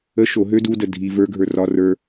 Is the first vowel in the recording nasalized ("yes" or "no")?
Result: no